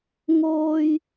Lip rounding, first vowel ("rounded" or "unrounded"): rounded